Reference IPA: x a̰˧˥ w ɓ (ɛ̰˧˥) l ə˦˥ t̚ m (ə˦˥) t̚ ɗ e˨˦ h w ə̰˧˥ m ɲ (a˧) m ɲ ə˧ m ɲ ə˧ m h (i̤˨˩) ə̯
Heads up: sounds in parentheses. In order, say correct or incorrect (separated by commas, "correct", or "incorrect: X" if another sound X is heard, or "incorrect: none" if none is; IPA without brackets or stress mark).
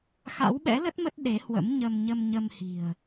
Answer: correct, correct, incorrect: ə˧, correct